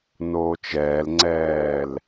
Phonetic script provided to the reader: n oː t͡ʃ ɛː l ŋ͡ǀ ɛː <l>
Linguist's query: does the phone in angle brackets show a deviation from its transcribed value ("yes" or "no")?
no